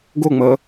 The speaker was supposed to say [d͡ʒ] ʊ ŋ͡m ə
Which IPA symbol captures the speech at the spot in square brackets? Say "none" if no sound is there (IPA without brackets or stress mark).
ɡ